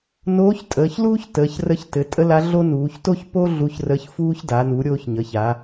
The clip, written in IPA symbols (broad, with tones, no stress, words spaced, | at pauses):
noː˧˥ç tʼəː˩˧çluː˥ç təː˩˧çrə˧˥çtɘ˩˧ tʼə˥ la˧˥ɮo˥nuː˩˧ç to˥çpo˥ ɮu˧˥çrə˧˥çfuː˥ç da˩˧nu˩˧ ɾʲoː˧ç ɲə˩˧ça˩˧